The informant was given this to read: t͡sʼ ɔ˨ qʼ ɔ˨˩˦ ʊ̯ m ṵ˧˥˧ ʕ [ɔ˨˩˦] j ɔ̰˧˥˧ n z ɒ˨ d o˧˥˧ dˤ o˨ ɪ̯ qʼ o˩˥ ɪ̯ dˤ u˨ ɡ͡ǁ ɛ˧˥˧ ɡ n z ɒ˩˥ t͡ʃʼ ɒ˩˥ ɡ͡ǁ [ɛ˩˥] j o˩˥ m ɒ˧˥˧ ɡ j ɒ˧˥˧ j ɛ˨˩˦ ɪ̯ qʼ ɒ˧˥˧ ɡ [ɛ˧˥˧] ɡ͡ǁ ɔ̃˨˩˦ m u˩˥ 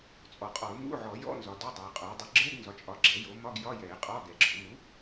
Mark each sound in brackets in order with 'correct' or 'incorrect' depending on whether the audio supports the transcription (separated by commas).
correct, correct, incorrect